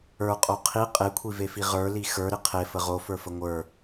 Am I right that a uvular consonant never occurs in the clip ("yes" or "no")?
no